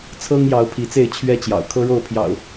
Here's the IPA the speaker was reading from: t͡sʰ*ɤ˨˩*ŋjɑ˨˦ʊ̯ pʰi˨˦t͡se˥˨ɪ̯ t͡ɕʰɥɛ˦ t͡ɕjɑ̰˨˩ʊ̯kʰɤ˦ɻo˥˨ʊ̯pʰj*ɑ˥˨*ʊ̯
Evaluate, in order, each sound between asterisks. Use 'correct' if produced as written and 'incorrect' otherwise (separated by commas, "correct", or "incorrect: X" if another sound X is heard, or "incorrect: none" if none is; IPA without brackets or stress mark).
incorrect: ɤ˦, incorrect: ɑ̰˨˩